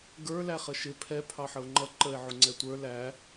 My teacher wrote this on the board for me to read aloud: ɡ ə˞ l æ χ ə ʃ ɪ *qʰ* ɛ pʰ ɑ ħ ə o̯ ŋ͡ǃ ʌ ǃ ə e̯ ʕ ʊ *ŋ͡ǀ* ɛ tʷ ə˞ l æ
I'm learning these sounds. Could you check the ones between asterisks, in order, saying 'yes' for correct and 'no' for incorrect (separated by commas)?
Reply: no, yes